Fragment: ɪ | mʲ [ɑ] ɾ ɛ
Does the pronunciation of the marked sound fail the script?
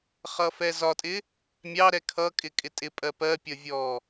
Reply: no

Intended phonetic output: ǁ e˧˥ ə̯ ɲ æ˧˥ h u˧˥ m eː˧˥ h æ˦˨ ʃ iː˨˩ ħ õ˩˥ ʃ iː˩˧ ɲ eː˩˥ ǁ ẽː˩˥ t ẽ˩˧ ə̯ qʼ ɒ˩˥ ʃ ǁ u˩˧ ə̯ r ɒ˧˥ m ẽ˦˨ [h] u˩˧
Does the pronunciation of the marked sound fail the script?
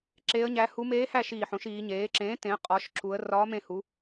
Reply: no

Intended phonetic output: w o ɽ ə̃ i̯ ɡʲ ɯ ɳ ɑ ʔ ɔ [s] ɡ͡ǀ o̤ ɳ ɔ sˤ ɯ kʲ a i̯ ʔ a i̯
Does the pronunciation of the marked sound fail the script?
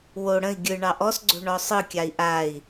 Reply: no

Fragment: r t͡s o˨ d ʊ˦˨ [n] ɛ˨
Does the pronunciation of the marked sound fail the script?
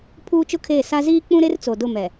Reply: yes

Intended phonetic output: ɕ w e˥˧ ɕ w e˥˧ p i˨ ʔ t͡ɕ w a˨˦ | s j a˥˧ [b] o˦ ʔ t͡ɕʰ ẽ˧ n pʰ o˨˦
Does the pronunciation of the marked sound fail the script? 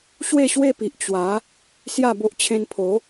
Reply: no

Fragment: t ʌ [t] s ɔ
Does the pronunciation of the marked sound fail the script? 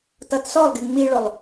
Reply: no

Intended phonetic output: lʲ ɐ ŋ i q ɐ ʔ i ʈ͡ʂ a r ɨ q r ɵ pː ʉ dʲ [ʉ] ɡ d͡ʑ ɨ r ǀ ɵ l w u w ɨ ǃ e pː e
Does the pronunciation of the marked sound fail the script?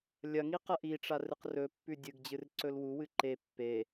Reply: yes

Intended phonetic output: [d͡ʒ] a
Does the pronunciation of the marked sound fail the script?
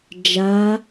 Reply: no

